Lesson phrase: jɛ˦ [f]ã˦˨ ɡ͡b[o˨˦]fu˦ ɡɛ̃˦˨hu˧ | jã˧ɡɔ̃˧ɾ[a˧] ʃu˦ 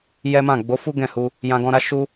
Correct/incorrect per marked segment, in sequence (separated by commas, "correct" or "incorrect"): incorrect, correct, incorrect